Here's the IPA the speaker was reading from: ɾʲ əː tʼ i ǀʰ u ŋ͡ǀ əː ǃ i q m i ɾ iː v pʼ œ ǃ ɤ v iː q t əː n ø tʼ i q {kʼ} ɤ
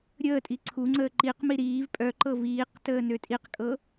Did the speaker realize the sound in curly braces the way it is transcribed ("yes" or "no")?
yes